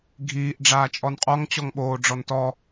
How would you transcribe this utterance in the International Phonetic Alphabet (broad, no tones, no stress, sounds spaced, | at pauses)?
ɡʱ iː ʔ ɖ͡ʐ aː t͡ʃʼ ɔ n qʼ ɔ ŋ t͡ɕ ɔ ŋ ɓ oː ɖ͡ʐ ɔ n t ɔ